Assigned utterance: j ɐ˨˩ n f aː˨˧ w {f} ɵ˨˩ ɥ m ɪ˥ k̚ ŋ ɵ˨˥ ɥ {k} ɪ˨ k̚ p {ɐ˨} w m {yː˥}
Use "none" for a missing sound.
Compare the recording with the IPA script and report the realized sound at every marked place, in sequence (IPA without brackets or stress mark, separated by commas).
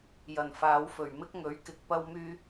f, k, ɐ˥, yː˥